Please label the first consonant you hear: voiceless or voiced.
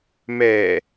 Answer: voiced